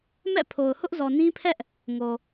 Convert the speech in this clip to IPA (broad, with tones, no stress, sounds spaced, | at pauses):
m ɛ̰˦˨ pʰ o˨ ʊ̯ h ʊ˦ ʔ z ɔ˨ n ĩ˦ pʰ ɛ˦ ʔ | ŋ o˨